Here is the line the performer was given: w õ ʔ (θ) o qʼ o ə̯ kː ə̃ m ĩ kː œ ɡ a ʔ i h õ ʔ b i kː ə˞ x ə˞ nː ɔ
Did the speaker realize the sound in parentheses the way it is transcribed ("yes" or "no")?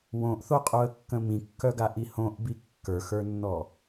yes